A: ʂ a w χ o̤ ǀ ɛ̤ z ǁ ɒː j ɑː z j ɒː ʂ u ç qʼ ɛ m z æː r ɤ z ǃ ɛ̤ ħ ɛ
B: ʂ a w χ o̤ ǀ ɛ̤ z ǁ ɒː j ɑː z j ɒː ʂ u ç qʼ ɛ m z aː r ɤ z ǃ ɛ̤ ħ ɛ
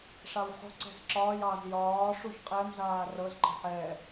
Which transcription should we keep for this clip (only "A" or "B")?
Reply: B